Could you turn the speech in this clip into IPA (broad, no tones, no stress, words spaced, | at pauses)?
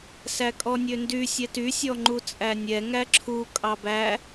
sækʼɔnʲøndy sʲɛty sʲɔŋ͡ǃut͡sʼænʲɛ ŋæǁʰu kʼɑbæ